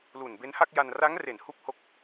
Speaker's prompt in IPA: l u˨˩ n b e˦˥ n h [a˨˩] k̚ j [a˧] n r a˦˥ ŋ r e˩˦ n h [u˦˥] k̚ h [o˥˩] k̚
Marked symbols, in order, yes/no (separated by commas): no, yes, no, yes